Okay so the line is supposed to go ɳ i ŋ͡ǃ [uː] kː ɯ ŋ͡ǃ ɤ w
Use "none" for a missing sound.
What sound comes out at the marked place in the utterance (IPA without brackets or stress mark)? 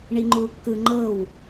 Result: uː